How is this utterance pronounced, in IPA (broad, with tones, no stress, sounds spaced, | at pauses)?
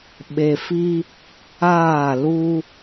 ɓ e˨ f i˦ | aː˦˨ l u˦